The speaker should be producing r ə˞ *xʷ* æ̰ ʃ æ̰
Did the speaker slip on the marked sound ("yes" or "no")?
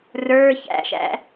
yes